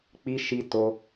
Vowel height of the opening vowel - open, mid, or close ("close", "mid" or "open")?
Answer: close